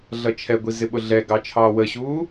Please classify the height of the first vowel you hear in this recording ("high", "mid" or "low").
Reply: mid